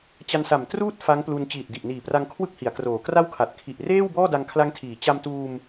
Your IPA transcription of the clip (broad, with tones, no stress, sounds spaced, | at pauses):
t͡ɕ a˧ n s a˨˩ m t r uː˥˩ t̚ f a˦˥ ŋ p l u˧ n t͡ɕ iː˨˩ t̚ d i˨˩ ʔ n iː˨˩ p r a˧ ŋ kʰ w ɯ˥˩ k̚ h i˩˦ a̯ k r oː˩˦ k r a˥˩ w kʰ a˨˩ t̚ kʰ i˨˩ ʔ r eː˥˩ w b ɔː˥˩ d a˧ ŋ kʰ l a˦˥ ŋ tʰ iː˩˦ t͡ɕ a˧ m t uː˧ m